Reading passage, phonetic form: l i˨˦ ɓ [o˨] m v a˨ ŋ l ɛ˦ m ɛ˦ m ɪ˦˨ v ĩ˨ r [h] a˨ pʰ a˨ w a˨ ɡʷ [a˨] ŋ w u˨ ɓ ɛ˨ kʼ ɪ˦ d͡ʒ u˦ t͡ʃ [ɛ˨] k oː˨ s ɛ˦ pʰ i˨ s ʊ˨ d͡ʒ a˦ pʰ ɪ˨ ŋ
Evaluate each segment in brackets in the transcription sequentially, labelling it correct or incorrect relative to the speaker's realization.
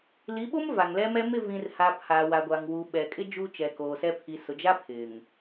incorrect, correct, correct, correct

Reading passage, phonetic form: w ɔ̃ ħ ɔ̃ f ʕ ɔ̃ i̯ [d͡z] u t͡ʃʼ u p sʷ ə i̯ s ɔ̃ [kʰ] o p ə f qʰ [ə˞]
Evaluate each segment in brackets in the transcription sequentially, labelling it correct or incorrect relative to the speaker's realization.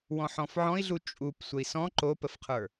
incorrect, incorrect, correct

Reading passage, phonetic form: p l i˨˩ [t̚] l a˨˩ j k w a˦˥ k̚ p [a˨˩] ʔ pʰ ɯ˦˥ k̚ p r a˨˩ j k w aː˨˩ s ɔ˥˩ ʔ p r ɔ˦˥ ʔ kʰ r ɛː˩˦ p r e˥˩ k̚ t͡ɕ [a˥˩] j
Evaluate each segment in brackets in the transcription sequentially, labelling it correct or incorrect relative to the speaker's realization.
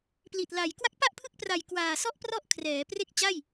correct, incorrect, correct

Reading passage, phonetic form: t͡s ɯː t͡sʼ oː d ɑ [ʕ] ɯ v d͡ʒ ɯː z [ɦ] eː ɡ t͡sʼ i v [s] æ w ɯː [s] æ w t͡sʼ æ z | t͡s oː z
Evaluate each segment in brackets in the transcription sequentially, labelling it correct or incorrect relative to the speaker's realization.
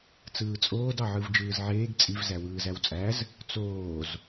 correct, incorrect, incorrect, incorrect

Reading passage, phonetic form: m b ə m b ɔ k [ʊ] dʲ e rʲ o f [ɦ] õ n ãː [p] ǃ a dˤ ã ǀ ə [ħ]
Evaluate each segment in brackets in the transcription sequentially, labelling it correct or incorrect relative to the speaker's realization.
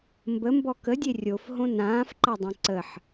incorrect, correct, incorrect, correct

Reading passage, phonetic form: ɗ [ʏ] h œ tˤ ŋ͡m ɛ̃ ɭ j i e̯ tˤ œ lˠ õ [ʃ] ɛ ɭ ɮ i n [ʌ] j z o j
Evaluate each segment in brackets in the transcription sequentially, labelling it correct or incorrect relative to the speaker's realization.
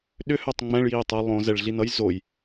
correct, incorrect, correct

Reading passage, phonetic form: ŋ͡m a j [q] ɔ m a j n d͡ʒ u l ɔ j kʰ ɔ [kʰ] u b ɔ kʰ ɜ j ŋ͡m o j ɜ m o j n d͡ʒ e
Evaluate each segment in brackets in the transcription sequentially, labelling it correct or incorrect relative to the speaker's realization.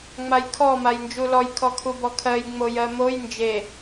incorrect, correct

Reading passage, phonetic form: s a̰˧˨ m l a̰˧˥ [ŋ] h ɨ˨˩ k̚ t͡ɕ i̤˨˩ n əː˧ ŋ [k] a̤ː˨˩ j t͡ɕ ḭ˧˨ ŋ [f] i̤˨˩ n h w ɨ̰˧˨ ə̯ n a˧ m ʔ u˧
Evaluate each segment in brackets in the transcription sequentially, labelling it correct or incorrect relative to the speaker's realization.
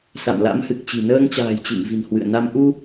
incorrect, incorrect, incorrect

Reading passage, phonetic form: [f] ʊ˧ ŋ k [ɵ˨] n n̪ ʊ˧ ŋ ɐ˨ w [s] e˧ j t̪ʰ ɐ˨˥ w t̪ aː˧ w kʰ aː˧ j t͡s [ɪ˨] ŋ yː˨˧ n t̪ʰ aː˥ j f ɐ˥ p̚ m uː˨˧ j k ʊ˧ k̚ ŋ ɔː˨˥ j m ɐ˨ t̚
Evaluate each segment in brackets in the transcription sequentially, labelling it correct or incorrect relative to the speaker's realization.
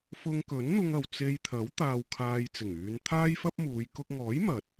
correct, incorrect, incorrect, incorrect

